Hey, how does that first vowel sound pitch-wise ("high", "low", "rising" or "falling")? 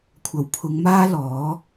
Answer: low